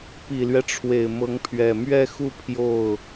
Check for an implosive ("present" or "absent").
absent